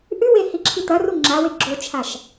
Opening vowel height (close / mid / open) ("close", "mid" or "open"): close